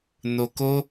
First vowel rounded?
yes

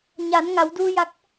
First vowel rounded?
no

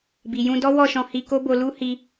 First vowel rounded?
no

